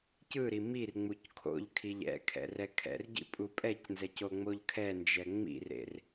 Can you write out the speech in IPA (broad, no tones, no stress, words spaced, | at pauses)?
cɯɾi mirŋ͡muc kʰo̰ʎ kʰiʎɛ̰kʰɛ̰r ɛkʰɛ̰rɟḭ pʼupʼɛcnzɛc oŋ͡moʎkʰɛnd͡ʒɛ ŋ͡mḭrḛr